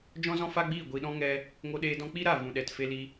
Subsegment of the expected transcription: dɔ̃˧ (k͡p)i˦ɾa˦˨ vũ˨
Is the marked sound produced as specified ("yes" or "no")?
yes